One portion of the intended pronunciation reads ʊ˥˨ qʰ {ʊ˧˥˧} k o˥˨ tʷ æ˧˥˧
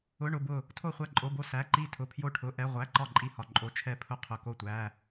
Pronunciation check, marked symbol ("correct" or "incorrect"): correct